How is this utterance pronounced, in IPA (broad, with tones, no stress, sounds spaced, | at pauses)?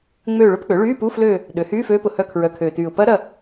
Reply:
ŋ͡m øː˦˨ ɭ ʊ˦˥ p k͡p ø˩˥ ɭ yː˧˥˧ p u˧˥˧ f l øː˦˨ | ɗ ø˩˥ h yː˧˥˧ f øː˦˥ p ʊ˨˩ h œ˦˨ kʰ ɹ œ˨˩ kʰ øː˨˩ t yː˨˩ ʊ̯ p ɐ˦˥ ɾ ɐ˦˨